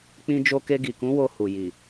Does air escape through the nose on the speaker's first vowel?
yes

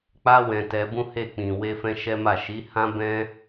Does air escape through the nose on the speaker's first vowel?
no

